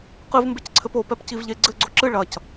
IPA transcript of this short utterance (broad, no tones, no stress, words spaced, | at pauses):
qɨvmbecǀʰɘp opɛpciv ʎe ɡ͡ǀɘɡ͡ǀo ǁɨ ɭɐc